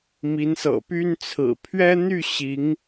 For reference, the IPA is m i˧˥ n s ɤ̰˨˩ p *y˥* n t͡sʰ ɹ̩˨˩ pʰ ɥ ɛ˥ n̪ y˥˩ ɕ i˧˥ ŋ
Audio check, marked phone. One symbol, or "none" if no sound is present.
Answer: y˥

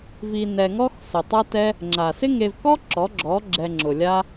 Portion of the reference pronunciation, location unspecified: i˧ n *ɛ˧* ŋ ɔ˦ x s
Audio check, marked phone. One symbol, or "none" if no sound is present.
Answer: ɛ˧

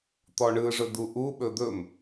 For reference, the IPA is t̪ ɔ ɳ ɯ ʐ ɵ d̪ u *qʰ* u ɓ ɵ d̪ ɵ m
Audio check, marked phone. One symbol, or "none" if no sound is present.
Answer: ʔ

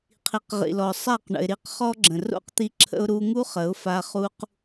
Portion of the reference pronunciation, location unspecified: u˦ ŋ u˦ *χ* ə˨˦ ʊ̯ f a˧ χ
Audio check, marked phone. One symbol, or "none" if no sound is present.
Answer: χ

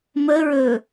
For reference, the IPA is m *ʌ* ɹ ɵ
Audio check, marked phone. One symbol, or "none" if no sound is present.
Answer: ə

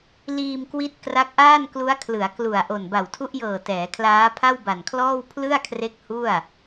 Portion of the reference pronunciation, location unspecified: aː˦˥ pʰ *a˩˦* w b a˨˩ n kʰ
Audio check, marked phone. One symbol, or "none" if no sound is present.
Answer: a˥˩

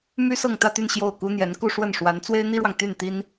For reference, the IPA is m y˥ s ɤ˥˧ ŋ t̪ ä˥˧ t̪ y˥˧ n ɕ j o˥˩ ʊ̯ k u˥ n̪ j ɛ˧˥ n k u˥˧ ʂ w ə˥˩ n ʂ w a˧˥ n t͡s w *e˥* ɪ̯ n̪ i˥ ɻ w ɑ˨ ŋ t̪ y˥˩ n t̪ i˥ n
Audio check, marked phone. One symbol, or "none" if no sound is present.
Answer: e˥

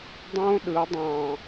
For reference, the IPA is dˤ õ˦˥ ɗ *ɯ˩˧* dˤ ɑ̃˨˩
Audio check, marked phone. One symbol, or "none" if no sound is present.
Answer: ɯ˩˧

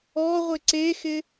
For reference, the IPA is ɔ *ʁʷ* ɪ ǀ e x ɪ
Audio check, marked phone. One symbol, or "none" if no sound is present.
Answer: ʁʷ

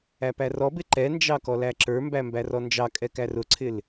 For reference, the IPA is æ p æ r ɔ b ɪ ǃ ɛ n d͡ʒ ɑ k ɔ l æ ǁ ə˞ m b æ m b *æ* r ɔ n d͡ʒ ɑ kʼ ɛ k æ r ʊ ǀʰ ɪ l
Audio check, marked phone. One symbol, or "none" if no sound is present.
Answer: æ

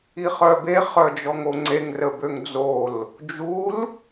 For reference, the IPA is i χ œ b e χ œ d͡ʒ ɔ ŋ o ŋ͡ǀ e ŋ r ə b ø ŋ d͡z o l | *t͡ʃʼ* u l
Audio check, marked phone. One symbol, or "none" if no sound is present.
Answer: d͡ʒ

